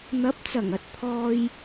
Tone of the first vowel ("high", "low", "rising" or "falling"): rising